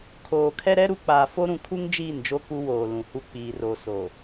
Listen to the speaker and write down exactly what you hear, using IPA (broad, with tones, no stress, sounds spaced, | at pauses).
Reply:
kʰ oː˨ kʰ ɛ˦ ɾ ɛ˦ ɾ u˨ k͡p aː˨ f o˦ ɾ ũ˨ kʰ u˦ ŋ d͡ʒ iː˦˨ n d͡ʒ o˦ k u˦ w oː˨ l ũ˨ h u˦ k͡p iː˨ r o˨ s o˨